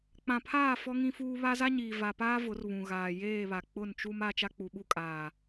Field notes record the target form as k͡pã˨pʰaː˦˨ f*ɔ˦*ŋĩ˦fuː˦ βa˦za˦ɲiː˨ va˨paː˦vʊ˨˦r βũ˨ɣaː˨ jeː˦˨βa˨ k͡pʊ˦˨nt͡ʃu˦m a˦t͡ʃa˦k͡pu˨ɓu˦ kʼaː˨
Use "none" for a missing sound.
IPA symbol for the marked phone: ɔ˦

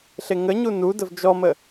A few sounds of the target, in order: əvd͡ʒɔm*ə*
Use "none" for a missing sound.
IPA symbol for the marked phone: ə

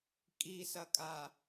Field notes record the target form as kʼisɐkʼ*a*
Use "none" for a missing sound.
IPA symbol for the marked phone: a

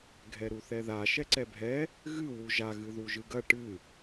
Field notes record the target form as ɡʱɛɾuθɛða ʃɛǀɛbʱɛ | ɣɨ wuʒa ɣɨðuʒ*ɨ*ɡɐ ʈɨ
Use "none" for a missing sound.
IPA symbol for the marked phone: ɨ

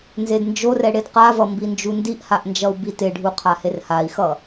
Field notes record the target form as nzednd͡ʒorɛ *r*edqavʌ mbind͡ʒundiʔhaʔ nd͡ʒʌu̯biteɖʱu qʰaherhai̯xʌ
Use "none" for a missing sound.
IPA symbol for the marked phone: ɽ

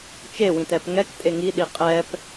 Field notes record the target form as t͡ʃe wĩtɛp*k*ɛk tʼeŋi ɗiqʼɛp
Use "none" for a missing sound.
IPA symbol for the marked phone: ŋ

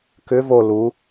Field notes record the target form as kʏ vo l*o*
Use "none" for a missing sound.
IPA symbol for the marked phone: u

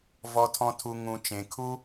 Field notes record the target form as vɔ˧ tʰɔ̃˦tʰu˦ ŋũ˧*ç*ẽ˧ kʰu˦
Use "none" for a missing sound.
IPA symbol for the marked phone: t͡ʃ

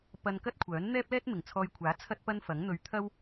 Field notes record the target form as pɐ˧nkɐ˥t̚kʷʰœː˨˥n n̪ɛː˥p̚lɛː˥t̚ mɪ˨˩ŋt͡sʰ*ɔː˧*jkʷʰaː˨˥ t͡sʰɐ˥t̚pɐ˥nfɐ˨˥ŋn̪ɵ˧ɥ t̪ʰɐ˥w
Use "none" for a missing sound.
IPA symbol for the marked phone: ɔː˧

